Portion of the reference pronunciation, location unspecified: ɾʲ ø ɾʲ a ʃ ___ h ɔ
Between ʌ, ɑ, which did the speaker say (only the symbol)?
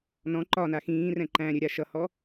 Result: ʌ